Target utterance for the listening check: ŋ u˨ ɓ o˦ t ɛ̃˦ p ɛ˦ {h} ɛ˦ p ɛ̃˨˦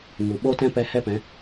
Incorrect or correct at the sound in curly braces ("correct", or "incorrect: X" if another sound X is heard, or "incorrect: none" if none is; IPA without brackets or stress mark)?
correct